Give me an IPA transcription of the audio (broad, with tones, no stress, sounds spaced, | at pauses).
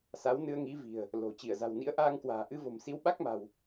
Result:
s a˨˦ w n ɨ˧ ə̯ ŋ i˨˦ v i̤˨˩ ə̯ | l o̤˨˩ t͡ɕ i˧˩ ə̯ z a̤˨˩ w n ḭ˧˥ ə̯ ʔ aː˧ ŋ k w a̤ː˨˩ ʔ ɨ˧ v o̤˨˩ m s i˨˦ w ɓ a˦˥ k̚ m a̤˨˩ w